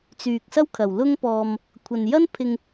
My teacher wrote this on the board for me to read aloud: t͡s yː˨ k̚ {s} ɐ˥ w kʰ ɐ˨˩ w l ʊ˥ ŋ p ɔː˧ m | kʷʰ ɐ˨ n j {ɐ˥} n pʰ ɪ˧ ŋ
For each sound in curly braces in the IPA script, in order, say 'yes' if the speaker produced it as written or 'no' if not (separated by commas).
yes, yes